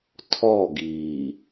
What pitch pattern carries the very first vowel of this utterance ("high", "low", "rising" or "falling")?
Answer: falling